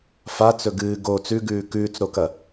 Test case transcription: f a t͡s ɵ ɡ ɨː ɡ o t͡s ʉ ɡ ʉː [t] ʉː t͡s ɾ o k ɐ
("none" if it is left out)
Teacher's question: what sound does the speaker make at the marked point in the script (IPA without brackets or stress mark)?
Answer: k